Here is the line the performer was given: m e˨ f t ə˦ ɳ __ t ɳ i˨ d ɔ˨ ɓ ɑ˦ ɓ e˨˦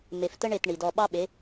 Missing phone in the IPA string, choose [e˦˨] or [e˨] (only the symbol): e˦˨